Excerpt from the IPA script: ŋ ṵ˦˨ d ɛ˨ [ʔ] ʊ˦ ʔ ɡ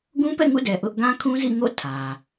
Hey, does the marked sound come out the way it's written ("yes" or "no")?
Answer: yes